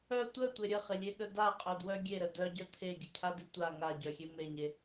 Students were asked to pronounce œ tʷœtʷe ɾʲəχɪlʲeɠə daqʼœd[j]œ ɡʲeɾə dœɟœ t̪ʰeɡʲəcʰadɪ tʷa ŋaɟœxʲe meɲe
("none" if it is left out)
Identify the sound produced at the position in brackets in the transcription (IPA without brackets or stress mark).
w